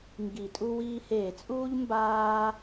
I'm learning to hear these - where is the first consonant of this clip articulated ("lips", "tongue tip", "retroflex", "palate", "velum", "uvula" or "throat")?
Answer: velum